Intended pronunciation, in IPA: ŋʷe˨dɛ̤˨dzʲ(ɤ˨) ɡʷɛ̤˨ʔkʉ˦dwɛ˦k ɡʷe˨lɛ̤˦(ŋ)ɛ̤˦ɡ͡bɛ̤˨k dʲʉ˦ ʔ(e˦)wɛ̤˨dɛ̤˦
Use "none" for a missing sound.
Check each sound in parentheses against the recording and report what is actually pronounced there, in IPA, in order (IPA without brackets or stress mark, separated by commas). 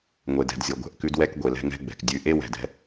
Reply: ɤ˨, ŋ, e˦